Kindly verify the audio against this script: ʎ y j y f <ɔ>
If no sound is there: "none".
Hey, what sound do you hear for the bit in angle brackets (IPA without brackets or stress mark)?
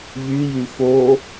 o